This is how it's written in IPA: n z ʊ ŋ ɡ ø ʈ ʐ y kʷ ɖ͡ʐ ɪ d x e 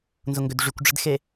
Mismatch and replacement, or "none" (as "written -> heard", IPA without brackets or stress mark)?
ʈ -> d